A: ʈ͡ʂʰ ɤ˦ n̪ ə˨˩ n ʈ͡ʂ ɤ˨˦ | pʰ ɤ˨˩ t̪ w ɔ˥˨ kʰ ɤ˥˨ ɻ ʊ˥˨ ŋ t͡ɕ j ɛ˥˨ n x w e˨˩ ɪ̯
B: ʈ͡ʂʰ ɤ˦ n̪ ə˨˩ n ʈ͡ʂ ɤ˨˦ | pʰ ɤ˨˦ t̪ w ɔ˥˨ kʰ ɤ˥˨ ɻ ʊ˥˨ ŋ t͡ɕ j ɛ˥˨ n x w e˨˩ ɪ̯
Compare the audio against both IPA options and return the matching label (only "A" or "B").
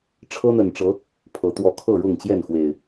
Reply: B